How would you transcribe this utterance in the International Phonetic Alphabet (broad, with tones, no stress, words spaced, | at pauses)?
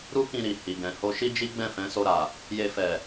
ɾu˦kĩ˧ɾi˨ hi˨ɡɛ̃˨ ho˧ʃi˦d͡ʒi˦ ɡ͡bɛ̃˦˨fɛ̃˨˦so˧ɾa˨ | je˧ fɛ˨